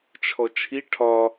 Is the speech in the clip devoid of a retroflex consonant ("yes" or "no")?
no